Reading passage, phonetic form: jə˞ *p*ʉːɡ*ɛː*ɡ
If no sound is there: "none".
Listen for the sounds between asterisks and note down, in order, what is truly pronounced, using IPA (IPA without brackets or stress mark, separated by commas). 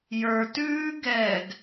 t, ɛː